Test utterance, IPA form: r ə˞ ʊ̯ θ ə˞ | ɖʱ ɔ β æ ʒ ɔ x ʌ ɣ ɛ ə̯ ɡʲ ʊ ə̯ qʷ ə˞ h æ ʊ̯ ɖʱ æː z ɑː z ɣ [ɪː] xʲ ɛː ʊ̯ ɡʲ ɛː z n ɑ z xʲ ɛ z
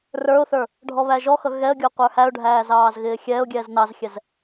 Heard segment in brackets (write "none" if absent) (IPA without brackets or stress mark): ɪː